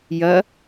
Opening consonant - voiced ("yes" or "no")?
yes